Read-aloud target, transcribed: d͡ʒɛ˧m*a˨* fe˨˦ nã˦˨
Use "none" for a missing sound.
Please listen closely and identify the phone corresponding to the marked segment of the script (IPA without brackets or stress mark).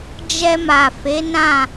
a˨